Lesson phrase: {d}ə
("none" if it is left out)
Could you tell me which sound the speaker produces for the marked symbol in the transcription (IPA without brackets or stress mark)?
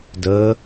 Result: d